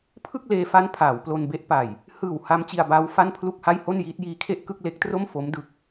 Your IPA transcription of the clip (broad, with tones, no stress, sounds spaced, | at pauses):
pʰ ɯ˥˩ k̚ l eː˧ f a˦˥ n pʰ aː˩˦ w p l o˧ n b e˦˥ ʔ p a˨˩ j | h ɯː˨˩ w h a˦˥ m t͡ɕ i˧ a̯ b aː˦˥ w f a˥˩ n pʰ l u˥˩ k̚ h a˥˩ j h o˥˩ n j iː˦˥ t̚ j iː˦˥ kʰ e˥˩ ʔ k ɯ˥˩ k̚ l e˦˥ k̚ t r o˥˩ m f o˦˥ m d ɯ˦˥ k̚